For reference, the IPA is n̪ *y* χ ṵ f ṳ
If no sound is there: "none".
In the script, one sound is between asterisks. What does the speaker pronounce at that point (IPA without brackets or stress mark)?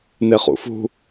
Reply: e